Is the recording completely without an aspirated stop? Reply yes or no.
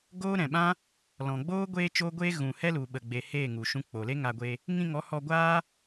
yes